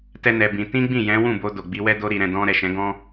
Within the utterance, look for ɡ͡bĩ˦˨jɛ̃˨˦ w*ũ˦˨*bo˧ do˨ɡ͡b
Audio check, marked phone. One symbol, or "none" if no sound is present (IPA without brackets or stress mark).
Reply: ũ˦˨